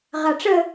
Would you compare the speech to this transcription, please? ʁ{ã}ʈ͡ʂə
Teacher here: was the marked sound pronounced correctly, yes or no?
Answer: no